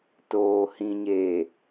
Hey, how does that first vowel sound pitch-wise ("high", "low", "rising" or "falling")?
low